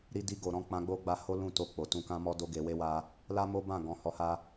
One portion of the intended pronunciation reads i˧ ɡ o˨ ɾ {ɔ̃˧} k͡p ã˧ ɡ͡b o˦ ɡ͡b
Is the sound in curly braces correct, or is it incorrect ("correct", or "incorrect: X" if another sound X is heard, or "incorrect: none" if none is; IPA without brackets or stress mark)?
correct